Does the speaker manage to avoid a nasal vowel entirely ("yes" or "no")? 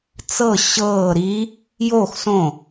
no